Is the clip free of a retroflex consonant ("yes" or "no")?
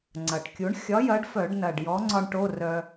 no